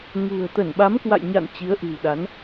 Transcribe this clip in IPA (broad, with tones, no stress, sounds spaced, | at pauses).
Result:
ŋ ṳ˨˩ ə̯ t̪ ə˧˩ n ɓ a˨˦ m k w a̰˧˨ j ɲ a̰˧˨ n t͡ɕ i˨˦ ə̯ ʔ ɨ̤˨˩ w ɗ a˨˦ n